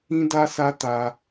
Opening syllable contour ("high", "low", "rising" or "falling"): high